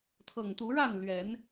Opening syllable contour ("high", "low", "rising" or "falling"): low